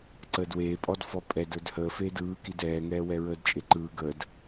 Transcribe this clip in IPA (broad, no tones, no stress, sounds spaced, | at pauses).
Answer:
ǀ əː d w eː pʼ ɔ d f ɔ pʼ ɛ d ə˞ d h əː f eː d ɯː k i d ɛː ŋ ɛː w ɛ ɹ əː d t͡ʃʼ e ǃ ɯː ɡ ə d